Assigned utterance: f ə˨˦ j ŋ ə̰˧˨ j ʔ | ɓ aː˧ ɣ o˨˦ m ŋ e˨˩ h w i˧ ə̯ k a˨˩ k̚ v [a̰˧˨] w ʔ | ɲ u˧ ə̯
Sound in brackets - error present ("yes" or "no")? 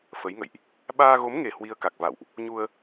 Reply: no